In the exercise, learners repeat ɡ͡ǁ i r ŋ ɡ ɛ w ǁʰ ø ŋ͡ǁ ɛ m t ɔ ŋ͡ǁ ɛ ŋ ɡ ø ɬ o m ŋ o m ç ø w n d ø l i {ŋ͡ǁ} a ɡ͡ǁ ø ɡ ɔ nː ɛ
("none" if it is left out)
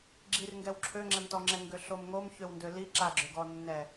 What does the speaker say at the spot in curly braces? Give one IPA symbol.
ǁ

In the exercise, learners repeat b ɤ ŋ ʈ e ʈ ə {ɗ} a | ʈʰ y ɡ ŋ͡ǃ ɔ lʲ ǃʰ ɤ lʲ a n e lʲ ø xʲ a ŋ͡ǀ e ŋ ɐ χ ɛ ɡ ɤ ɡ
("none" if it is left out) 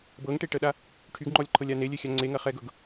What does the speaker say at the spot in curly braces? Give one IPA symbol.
ɗ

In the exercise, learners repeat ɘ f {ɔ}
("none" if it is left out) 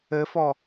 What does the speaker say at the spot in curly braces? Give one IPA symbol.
ɔ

